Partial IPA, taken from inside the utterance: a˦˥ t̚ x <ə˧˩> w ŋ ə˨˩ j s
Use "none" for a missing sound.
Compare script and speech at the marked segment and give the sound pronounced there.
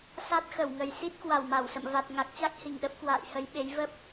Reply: ə˧˩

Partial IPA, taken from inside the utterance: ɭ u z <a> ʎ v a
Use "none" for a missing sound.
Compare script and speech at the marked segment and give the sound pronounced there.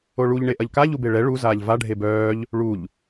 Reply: aː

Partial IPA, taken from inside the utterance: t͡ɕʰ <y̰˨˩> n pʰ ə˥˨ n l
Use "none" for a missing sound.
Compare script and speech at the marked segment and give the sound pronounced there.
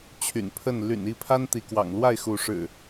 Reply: y̰˨˩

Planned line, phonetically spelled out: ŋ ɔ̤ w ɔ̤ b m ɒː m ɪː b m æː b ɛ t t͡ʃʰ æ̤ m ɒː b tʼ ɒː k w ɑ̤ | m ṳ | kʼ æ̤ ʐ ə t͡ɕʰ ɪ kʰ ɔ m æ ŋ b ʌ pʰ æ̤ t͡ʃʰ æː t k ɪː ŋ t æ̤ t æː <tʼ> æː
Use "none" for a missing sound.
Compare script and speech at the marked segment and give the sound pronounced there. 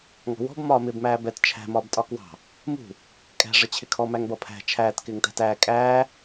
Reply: kʼ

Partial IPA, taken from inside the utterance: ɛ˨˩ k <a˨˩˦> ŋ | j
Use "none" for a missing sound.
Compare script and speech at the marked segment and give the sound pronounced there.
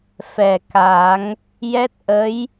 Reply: a˨˩˦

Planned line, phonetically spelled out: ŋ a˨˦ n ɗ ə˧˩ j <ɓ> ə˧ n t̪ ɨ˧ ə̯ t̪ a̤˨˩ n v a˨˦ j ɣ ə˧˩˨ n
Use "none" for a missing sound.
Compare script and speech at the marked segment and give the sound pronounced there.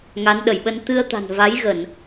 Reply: ɓ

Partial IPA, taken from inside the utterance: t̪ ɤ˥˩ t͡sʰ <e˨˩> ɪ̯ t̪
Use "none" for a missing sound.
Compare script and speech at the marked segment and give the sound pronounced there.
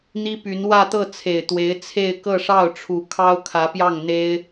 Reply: e˨˩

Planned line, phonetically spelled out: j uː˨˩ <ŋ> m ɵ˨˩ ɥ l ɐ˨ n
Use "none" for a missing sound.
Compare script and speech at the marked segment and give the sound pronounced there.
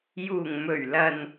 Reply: ŋ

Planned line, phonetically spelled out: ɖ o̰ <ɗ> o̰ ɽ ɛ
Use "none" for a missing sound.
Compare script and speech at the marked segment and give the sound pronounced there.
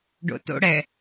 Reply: t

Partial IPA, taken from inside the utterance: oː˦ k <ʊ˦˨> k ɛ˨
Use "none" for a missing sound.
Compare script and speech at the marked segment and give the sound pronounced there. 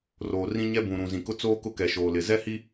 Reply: ʊ˦˨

